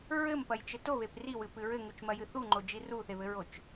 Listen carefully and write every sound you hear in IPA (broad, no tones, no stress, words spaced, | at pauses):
ɹɘmpɐjt͡ʃɘ toβep riwɨpɨ ɹɘŋut͡ʃmɐjɨ θuŋ͡ǃod͡ʒi ruθeβɘɹot͡ʃ